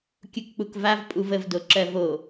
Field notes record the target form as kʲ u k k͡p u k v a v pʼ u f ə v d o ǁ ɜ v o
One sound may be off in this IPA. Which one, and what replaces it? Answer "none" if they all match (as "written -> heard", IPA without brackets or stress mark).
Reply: f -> v